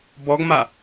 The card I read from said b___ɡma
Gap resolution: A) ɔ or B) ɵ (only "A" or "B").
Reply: A